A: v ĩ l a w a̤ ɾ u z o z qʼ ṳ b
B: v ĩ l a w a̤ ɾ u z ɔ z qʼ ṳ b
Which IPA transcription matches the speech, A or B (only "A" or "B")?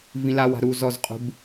B